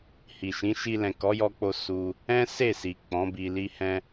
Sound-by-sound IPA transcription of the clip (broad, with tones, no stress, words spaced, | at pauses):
hi˨ʃĩ˨˦ʃi˧ lɛ̃˨kɔ˨˦ jɔ˦k͡po˦ su˧ | ɛ̃˦ se˦˨si˨ k͡pɔ̃˨˦bi˧li˦hɛ̃˦